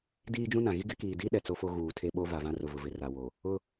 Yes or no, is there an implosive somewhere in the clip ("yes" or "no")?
yes